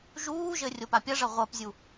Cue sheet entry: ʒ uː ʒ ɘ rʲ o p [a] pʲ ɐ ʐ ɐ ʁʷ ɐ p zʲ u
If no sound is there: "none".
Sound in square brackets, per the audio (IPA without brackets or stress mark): a